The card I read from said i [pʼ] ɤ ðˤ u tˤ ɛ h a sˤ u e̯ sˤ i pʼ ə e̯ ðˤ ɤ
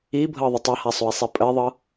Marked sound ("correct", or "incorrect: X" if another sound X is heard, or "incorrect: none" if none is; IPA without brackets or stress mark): incorrect: bʱ